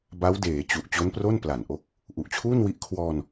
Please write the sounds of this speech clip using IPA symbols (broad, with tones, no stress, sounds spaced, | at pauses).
b a˦˥ w d eː˩˦ t͡ɕ u˨˩ ʔ t͡ɕ o˦˥ n p r o˥˩ n p l a˨˩ n ʔ o˥˩ k̚ | ʔ u˨˩ ʔ t͡ɕʰ uː˥˩ n w i˦˥ ʔ kʰ w ɔː˧ n